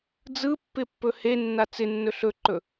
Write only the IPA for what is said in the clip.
d͡zɯpːɪpːɵ henːa t͡sɪnːɵ ɬɵǃɵ

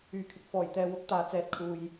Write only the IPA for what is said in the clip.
yː˨˩kʰɪ˨˥k̚fɔː˨˩j t̪ɛː˨wʊ˨˥k̚ t̪aː˨˧ t͡sɛː˧t̚kʰuː˧j

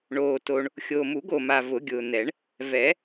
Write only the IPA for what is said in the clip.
ɳoː˨ to˨ɳ | xʲoː˨mu˨˩˦ɡo˨ma˨ vʊ˨˩˦ɡʲʊː˨n̪ɛ˨˩˦ɳ | vɛ˨˩˦

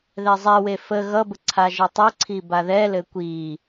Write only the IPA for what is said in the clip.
ðɛzˤɛwe fə ɣʌbə ǀʰaʒətˤəǀʰi baðɛlɘ kʷi

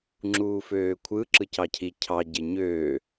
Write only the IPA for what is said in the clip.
ŋ͡ǁuːføːkʷʰɯ ǁɯcɑcʰi cʰɑ ɟeɲøː

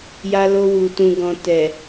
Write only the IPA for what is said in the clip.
ja˧lo˧wu˨ tũ˨ɡɔ̃˨tɛ˨

